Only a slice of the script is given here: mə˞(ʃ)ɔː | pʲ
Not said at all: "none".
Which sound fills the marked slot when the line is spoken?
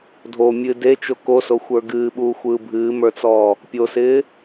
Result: t͡s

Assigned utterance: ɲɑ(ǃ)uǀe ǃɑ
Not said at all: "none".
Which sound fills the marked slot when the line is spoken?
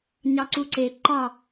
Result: ǀ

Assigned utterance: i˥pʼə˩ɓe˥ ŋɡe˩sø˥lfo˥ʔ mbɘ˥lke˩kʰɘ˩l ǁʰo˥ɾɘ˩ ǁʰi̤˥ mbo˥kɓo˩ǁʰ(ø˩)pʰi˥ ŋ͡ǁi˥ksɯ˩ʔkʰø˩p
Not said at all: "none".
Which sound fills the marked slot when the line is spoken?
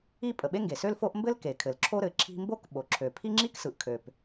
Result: ø˩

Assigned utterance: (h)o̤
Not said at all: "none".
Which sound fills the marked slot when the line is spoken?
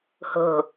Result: h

